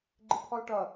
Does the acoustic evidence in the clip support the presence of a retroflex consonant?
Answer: yes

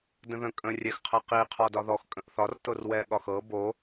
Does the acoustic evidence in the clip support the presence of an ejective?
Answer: yes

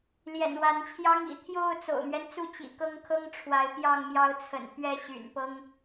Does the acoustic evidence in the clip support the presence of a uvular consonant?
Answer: no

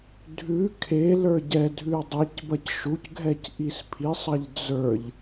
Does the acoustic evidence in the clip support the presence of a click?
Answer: no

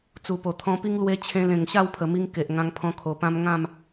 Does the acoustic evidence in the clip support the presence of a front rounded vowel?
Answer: no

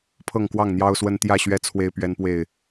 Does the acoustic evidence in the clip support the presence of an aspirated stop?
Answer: yes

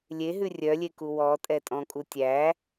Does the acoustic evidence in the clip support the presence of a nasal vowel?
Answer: yes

